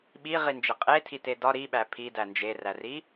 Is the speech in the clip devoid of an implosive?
no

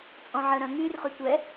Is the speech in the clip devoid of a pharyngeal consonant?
no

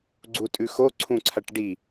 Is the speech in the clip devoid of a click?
no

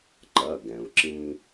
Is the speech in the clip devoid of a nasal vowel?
no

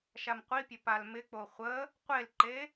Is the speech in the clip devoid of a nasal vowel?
yes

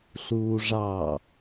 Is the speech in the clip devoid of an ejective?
yes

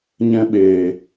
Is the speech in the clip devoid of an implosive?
no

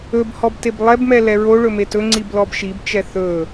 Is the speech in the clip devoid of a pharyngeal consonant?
yes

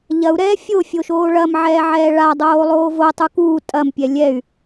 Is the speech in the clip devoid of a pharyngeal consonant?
no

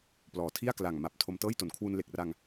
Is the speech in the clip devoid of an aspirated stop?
no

